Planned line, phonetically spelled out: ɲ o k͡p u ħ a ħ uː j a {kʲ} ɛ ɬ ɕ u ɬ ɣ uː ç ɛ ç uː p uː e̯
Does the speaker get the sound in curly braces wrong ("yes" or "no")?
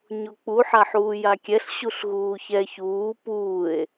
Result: no